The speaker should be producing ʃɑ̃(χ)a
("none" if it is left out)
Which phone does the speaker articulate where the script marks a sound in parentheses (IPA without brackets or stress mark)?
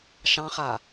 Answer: χ